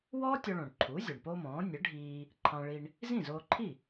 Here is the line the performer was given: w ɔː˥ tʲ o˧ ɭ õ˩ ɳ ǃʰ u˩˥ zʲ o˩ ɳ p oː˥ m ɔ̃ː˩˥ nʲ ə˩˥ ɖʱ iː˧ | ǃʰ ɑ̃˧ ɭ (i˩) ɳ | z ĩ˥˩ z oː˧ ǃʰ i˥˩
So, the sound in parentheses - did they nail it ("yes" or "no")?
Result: no